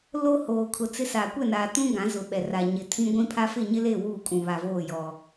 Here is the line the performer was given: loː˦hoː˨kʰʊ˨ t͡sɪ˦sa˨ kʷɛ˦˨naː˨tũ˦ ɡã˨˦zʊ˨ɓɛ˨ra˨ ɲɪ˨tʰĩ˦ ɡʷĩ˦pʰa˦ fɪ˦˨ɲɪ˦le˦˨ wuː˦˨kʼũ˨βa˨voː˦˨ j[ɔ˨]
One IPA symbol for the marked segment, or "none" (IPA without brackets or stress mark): ɔ˨